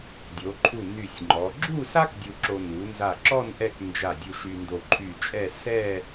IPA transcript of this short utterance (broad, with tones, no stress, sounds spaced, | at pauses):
dʲ o˩˧ ǃʰ u˧˩ n y˧˩ sʲ ŋ͡ǃ ɔ˩˧ ɡ͡ǁ u˥˧ s a˥ k dʲ u˧ ǁ o˧ n u˩˧ n z a˧˩ ǁ ɔ˥˧ n ʔ ɛ˥˧ k n d͡ʒ a˧˩ dʲ u˧ ʃ y˧ n d o˧˩ ǃʰ y˧˩ t͡ʃʼ ɛ˥˧ s ɛ˥˧